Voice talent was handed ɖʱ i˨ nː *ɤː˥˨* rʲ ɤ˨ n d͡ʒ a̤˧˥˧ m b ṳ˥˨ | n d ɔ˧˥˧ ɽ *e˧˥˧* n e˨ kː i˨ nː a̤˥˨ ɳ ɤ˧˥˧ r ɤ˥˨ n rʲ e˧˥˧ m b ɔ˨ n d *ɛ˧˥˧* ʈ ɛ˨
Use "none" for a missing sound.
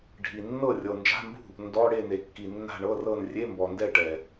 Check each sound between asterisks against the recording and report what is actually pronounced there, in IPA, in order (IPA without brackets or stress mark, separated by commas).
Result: ɤ˥˨, e˥˨, ɛ˥˨